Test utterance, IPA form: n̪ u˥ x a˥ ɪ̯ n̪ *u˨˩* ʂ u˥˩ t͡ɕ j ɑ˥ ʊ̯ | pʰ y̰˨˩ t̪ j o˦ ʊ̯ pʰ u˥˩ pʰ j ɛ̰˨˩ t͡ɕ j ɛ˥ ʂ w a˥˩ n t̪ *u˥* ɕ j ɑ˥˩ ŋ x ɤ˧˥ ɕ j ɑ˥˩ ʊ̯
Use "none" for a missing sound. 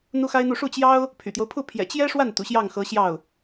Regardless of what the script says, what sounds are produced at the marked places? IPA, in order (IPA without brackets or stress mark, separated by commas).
u˥˧, ṵ˨˩